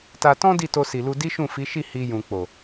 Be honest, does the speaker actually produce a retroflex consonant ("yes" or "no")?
no